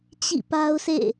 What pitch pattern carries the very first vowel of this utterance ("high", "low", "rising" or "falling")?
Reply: falling